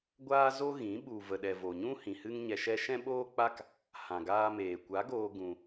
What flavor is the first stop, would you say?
plain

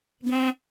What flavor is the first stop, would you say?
plain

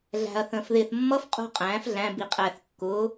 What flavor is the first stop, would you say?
ejective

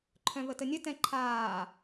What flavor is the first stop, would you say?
click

